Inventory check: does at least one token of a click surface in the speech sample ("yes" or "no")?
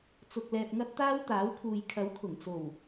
no